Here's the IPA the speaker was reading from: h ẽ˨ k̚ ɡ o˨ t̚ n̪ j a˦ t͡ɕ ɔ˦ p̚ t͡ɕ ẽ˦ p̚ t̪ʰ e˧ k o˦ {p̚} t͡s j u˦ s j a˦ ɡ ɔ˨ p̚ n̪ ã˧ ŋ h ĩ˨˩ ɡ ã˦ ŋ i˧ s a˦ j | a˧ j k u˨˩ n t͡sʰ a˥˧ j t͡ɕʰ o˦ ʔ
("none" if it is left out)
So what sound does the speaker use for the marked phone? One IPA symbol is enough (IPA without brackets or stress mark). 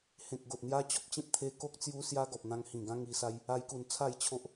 k̚